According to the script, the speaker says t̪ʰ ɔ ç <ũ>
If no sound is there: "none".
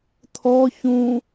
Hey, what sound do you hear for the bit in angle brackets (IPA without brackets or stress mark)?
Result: ũ